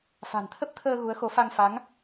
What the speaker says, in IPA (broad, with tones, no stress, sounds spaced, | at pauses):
f a̤˨˩ n t̪ʰ ə˦˥ p̚ t̪ʰ əː˧ ɣ u˨˦ ə̯ x o˨˦ f a˧ ŋ f a˨˦ ŋ